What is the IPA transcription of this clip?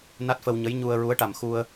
n a˦˥ t̚ f ə˧ w ɲ ə˧˥ j ɲ u˧ ə̯ ɹ u˧˥ ə̯ ʈ a˨˩ m x u˧ ə̯

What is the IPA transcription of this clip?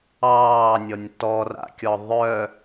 ɑː nʲ ɔ nʲ t ɔ r a̰ kʲ ɔ ðˤ œ

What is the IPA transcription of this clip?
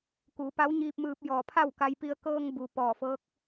k u˩˧ p a˧˥ w ɲ iː˧ p̚ m ɯː˧ p̚ j ɔː˧˩ pʰ a˥˨ w k a˧ j p i˧ ə̯ k ɤː˧ ŋ b u˩ p ɔː˧˩ f ɤː˧˥ k̚

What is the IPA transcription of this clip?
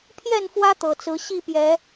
pʰ j ɛ˥˨ n f w ä˦ t̪ ɤ˨˩ t͡s ɹ̩˨˦ ɕ i˥˨ p j ɛ˨˦

